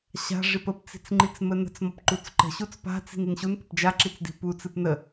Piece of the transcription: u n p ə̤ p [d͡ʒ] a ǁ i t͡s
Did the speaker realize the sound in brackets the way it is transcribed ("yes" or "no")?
yes